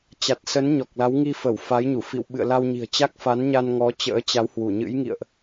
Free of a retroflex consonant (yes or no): yes